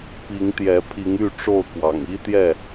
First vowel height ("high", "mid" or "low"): high